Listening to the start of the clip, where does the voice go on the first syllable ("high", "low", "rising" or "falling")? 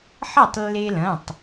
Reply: falling